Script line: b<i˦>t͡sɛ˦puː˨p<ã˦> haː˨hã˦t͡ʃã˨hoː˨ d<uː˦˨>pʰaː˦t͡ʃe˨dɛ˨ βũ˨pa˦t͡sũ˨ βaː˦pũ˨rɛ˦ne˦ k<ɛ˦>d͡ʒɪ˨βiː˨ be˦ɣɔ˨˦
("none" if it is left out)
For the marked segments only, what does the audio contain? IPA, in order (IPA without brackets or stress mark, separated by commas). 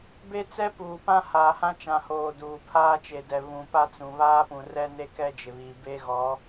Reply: e˦, ã˦, uː˨, ɛ˦